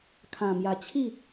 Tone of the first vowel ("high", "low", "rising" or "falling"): low